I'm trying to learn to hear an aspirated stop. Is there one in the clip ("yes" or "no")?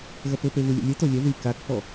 no